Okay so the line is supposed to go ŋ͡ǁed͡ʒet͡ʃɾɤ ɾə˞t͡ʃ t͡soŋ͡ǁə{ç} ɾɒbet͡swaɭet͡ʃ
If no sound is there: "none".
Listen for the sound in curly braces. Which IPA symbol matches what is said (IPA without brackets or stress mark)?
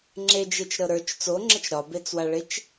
t͡ʃ